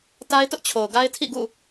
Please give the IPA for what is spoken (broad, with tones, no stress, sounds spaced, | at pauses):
t a˦ ɪ̯ t ʊ˦ ʔ t͡ɕʰ o˨ ʊ̯ ɡ a˦ ɪ̯ tʰ ḭ˦˨ ɡ ṵ˦˨